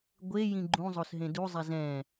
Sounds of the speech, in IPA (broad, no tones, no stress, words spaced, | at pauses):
ɡʷe jĩɡ͡ǃũzˤos ɦẽduzˤɛ zɛ̃